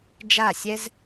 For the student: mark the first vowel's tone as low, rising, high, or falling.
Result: falling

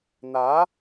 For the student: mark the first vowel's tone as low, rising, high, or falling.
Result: rising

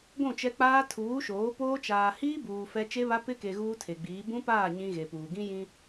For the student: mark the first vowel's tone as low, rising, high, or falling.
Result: falling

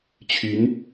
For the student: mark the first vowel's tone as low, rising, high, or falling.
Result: rising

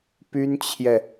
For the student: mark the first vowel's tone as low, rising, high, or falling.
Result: high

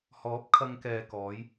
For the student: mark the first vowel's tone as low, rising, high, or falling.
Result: rising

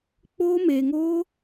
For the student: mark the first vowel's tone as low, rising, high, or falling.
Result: high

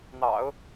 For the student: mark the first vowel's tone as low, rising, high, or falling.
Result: low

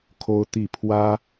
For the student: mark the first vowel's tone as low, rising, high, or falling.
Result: high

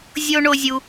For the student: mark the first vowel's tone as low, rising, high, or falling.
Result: high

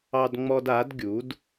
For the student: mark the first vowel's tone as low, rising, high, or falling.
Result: high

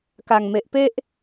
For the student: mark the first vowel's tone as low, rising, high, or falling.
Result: low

